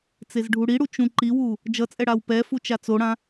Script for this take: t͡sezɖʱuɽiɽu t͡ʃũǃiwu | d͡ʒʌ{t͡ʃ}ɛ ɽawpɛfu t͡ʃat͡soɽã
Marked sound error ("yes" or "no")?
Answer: yes